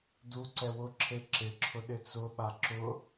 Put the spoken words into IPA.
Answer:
d u ǀ ɛ w ʊ ǁʰ e ǁ ɪ ǁʰ ʊ ɗ ɪ t͡s ʊ ɓ a ǁ ʊ

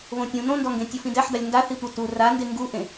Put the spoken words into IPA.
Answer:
β õ tʲ ũ n õ n d ɔ ŋ ɡ ẽ tʲ u f ĩ d ɛ ħ d a lʲ n d a θ i tʷ ɛ t u r a n d e ŋ ɡ u ʔ ẽ

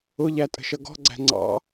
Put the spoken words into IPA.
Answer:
ʊ ʎ æ tʼ ə̤ ʃ ʌ ɡ ɔ̤ ɡ͡ǀ æ̤ ŋ͡ǀ ɑ̰

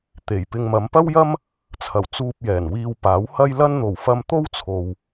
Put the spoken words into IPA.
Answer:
t̪ e˨˩ j p ɪ˧ ŋ m ɐ˨˧ m p ɐ˥ w j ɐ˥ m | t͡sʰ ɐ˨˩ w t͡s uː˧ p̚ j ɛː˨˩ n w iː˧ w p aː˨˥ w h ɐ˥ j l ɐ˥ n n̪ o˨˩ w f ɐ˧ m t̪ o˥ w t͡sʰ o˨ w

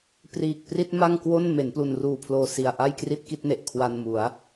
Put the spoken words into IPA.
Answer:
p r iː˨˩ k̚ p r i˥˩ t̚ m a˥˩ ŋ k w o˥˩ n m e˩˦ n p l u˨˩ n r uː˨˩ pʰ l oː˨˩ s i˨˩ a̯ ʔ a˥˩ j k r i˥˩ t̚ k i˥˩ t̚ n e˨˩ ʔ kʰ w a˧ n m u˩˦ a̯

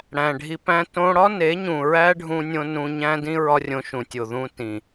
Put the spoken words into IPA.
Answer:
ɽ æ̃˨ ɖʱ i˧ p æ̃˦ t õ˧ ɽ ɒ˦ n e˨˦ ɲ ũ˨ ɹ æ˦ ɖʱ ũ˧ nʲ õ˧ n ũ˧ ɲ æ̃˦ d ĩ˦ ɹ ɒ˦ rʲ õ˧ ʃ ũ˨ tʲ o˨ ð ũ˧ t ĩ˨

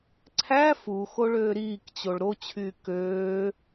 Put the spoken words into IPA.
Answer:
ǀʰ æ f u x o ɭ øː ɾ iː k t͡ɕ o ɭ ɾ o t͡ɕʰ yː k øː

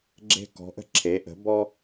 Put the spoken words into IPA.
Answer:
ɡ͡ǁ e̤˦ k ɔ̤˩˥ ʔ ə̤˦ ǁʰ e˩˥ ʔ ə̤˩˥ b ɔ˦

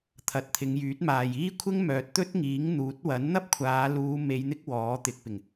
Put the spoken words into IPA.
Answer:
t̪ʰ ɐ˨ t̚ t̪ʰ ɪ˨˧ ŋ j yː˨˥ t̚ m aː˨ j iː˥ kʷʰ ɪ˥ ŋ m œː˨ t̚ t̪ ɵ˥ t̚ ŋ iː˨˥ ŋ n̪ uː˨˥ t̚ w ɐ˨˥ n n̪ ɐ˥ p̚ kʷʰ aː˨˧ l uː˨˧ m e˨˧ j n̪ ɪ˥ k̚ w ɔː˨˥ t̪ ɪ˨˥ k̚ p ɪ˨˩ ŋ

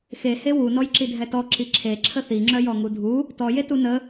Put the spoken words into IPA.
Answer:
x e h e w u n ɔ j ǁ i dʱ ɛ t ɔ ǁ i ǁʰ e ǁʰ ə θ i ŋ͡ǁ œ j ɔ ŋ u dʱ u | t ɔ j e t u n ə

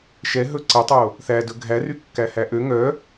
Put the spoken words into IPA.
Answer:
ʃ ɛ ɦ ɵ ǀ ɛ tˤ o | θ æ d ɵ ɡʱ æ r y kː æ h æ ʔ ø ŋ œ

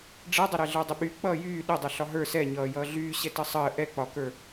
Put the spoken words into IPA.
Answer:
ɖ͡ʐ ɛ dˤ ʌ ɾ ɛ ɮ ə˞ dˤ ə ɓ y k͡p ʌː j yː ɗ ə dˤ ɛ ɬ ɒ ɦ ə˞ s ɛ ɲ ʌː j ʌː ɮ yː ɕ ɛ t ə sˤ əː ʔ ɛ k͡p ɒ k ə˞

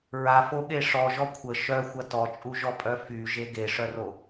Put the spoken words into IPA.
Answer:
ɹ a f o ɠ e ʂ ɔ ʒ ɔ kʷʰ ə ʃ œ xʷ ɐ t ɔ t͡ʃʼ u ʒ ɔ pʼ œ f y ʒ e ɡ e ʂ œ r o

